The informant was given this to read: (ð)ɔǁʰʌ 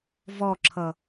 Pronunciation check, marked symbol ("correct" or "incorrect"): incorrect